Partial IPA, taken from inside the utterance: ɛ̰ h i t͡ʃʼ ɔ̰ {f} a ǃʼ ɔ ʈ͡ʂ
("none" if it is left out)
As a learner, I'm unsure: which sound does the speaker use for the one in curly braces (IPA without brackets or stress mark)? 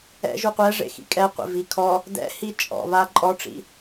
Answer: β